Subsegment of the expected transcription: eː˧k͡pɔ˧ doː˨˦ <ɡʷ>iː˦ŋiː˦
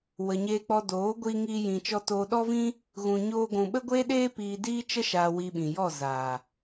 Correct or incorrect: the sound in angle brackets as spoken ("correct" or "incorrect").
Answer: correct